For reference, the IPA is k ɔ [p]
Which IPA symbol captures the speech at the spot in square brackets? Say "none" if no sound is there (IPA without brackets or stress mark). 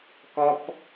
p